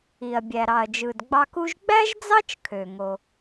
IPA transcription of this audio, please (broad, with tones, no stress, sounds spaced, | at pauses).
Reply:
i˩ ɐ̯ bʲ æ˩ ɾ ɑ˩ ɐ̯ d͡ʒ ɯ˩ d ɡ͡b ɑ˧ k u˧ ʒ ɡ͡b æ˥ ʒ d͡z ɑ˥ t͡ʃ kʰ ø˩ ŋ o˩